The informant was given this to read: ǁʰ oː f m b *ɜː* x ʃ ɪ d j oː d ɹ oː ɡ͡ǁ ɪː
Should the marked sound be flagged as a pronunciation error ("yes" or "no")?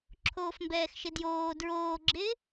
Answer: yes